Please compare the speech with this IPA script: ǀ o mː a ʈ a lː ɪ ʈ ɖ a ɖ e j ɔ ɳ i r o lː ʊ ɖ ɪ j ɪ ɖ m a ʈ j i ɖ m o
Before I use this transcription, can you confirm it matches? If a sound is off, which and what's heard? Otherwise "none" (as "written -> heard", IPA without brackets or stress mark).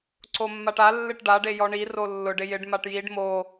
none